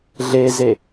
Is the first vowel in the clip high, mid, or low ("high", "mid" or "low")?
mid